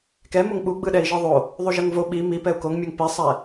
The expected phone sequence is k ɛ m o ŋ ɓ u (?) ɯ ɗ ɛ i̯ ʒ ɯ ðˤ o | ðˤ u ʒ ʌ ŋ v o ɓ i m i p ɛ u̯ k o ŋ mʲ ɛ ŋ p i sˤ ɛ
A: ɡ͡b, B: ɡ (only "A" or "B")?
A